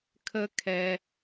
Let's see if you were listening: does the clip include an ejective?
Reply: no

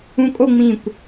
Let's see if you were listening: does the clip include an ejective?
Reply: yes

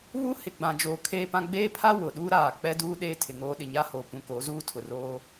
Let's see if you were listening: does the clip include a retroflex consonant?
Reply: no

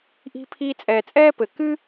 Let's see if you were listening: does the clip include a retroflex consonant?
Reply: no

